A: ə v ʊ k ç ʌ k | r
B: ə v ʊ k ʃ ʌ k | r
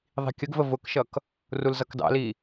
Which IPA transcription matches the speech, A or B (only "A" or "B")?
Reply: B